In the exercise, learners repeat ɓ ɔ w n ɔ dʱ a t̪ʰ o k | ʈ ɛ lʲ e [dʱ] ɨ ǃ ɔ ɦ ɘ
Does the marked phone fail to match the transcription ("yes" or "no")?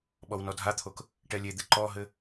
yes